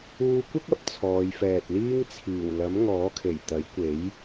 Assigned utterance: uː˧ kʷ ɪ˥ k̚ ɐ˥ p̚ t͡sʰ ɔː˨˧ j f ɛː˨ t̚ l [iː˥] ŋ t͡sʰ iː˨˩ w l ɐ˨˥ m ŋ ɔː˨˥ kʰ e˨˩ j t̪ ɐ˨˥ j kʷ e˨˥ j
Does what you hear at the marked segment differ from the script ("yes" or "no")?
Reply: no